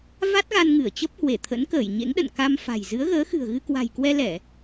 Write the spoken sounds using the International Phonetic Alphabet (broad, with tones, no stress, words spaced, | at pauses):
va˦˥t̚ɣa˧nŋɨ˧˩ə̯ t͡ɕə˦˥p̚hwe˧˩ t̪ʰə̰˧˥nkəː˧˩j ɲḛ˧˥ŋɗə̰˧˨n ka˧m fa̤˨˩j zɨ˨˦ə̯ɣəː˨˦ xɨ̤˨˩ə̯ɣɨ˧kwa̤˨˩jkwɛ˧ lɛ˧˩˨